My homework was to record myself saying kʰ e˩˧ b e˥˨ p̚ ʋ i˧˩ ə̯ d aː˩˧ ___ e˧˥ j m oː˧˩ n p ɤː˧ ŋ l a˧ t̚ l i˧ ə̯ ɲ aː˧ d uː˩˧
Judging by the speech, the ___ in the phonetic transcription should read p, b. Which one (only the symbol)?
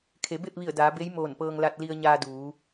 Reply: b